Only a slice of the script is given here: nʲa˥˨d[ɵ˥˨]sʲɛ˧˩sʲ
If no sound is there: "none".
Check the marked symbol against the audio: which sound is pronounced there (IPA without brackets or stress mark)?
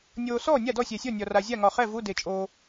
ɔ˥˨